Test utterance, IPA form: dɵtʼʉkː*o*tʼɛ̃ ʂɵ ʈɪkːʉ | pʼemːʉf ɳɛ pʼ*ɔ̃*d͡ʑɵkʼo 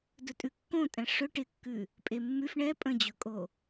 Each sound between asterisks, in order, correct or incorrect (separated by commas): incorrect, incorrect